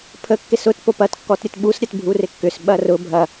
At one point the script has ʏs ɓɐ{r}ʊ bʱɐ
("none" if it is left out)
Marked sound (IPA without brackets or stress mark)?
r